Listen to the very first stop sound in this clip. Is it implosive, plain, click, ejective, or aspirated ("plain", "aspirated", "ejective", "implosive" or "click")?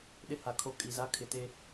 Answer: implosive